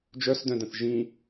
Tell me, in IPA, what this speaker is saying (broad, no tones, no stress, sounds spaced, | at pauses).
d͡ʒ œ s d œ̃ d ə̃ θ ʒ ĩ